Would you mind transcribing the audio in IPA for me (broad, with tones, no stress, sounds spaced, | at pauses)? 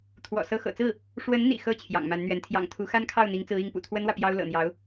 t̪ʰ w ɔ̰˨˩ s ɤ˧˥ x ɤ̰˨˩ t͡s ɹ̩˥˩ | ʂ w ə˧˥ n n̪ ḭ˨˩ x ɤ˥˩ t͡ɕʰ j ɑ̰˨˩ ŋ m a˧˥ n n̪ ɥ ɛ˧˥ n t̪ʰ j ɑ̰˨˩ ŋ t̪ʰ u˧˥ x a˥ n kʰ ɑ˥˩ ʊ̯ n̪ i˧˥ ŋ t͡s ɹ̩˧˥ i˧˥ ŋ p ṵ˨˩ t̪ʰ w ə˥ n w ä˨ p j ɑ˥ ʊ̯ l ɤ̰˨˩ n̪ j ɑ˧˥ ʊ̯